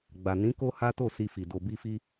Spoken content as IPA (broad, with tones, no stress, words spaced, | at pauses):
ɡ͡ba˨ nĩ˨˦ ko˦ha˦to˦˨ si˧fi˨ do˨bi˧fi˧